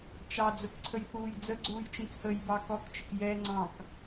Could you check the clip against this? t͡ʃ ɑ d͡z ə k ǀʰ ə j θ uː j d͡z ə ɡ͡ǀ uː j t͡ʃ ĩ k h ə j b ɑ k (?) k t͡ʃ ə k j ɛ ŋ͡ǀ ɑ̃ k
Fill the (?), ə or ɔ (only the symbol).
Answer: ɔ